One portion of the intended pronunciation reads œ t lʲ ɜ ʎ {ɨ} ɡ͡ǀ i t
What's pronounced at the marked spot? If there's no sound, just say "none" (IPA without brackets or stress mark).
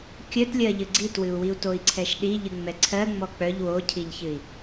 ɨ